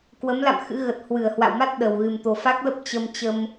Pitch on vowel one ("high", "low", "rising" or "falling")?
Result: rising